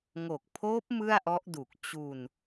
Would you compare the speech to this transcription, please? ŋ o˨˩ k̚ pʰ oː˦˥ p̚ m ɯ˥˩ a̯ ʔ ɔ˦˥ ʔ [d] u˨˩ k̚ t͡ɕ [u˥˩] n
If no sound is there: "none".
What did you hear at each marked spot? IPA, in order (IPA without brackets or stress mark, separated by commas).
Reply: d, u˧